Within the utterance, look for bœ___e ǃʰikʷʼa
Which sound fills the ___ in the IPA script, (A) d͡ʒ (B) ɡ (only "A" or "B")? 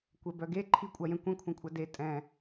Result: B